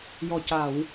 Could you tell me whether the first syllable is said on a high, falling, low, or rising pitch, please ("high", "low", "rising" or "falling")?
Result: low